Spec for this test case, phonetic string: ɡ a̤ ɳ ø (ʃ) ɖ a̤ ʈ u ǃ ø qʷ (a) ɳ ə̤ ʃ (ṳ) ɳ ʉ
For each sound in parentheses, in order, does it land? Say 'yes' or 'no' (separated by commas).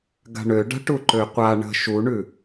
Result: no, yes, no